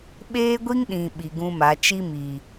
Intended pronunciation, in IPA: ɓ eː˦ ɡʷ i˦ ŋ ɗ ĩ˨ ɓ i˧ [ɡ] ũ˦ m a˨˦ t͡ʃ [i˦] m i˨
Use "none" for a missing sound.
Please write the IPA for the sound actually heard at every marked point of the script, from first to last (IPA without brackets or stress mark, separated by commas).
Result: ɡ, i˦